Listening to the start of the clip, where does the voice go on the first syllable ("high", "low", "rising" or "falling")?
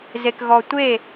low